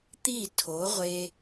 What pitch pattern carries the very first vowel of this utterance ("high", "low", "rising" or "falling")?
falling